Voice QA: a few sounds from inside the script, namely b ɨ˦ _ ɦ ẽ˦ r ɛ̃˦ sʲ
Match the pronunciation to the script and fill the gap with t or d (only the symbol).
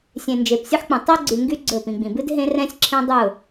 d